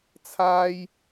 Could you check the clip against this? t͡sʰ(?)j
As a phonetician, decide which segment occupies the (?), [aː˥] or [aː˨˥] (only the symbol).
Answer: aː˥